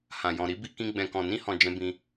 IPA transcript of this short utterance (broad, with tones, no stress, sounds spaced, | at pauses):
h ã˨ j ɔ̃˨ ɾ i˨˦ b i˧ k ĩ˧ ɡ͡b ɛ̃˨ k ɔ̃˨ n ĩ˧ h ɔ̃˨ d͡ʒ ɛ̃˧ b ĩ˧